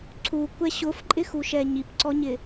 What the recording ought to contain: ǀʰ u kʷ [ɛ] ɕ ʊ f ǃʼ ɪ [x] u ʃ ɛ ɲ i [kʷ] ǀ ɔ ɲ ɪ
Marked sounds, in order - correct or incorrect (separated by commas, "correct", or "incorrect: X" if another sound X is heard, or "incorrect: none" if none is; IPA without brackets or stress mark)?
correct, correct, incorrect: p